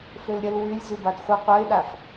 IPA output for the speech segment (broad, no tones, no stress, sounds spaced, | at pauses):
f ø l ɾʲ ə l w y lʲ z y b a d χʷ ə qʷ œ ɪ̯ ɗ a f